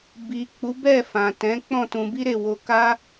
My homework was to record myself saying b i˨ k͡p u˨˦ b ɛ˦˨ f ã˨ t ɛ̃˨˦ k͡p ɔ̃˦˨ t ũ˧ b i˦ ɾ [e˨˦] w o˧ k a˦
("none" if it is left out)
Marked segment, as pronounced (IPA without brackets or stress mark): e˦˨